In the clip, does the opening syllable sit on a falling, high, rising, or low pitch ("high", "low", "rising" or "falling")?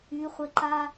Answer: high